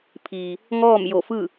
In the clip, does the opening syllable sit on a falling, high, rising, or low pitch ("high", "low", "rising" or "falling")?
low